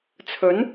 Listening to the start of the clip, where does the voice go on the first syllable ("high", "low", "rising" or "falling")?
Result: rising